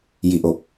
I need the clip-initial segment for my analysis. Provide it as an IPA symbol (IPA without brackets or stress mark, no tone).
j